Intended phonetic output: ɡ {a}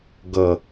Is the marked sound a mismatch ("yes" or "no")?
yes